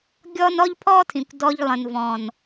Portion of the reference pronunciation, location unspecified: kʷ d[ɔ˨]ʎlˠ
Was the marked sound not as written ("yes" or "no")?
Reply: yes